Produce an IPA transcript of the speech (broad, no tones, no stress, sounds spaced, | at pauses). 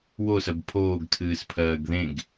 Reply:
w o s ɜ b pʰ oː ɡ tʰ ɨː s pʰ ɜː ɡ ð ẽ ɡ